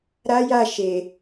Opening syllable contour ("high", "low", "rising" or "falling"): high